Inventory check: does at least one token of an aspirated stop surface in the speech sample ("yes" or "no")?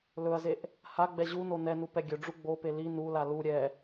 no